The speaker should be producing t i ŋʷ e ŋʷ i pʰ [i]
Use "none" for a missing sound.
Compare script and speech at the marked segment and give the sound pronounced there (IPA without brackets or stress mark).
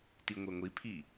i